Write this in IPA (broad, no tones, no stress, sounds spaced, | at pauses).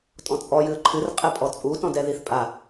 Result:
tʼ ɔ̃ t͡sʼ ɔ j ɨ ə̯ ǃʰ ɨ r qʼ ɛ pʼ ɔ t͡sʼ u t ɔ̃ d ɛ ð i θ pʼ a